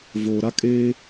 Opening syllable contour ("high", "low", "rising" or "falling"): low